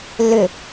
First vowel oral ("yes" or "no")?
yes